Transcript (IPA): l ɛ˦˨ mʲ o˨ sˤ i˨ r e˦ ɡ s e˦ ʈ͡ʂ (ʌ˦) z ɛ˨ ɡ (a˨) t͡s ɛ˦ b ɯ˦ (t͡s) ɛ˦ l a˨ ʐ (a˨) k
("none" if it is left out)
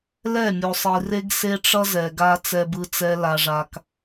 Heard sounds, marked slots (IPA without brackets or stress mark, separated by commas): ʌ˦, a˦, t͡s, a˨